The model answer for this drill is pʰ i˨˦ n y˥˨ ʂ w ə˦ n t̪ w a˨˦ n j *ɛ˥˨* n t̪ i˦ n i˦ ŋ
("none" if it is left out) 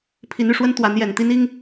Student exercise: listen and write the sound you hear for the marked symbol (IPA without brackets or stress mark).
ɛ˨˩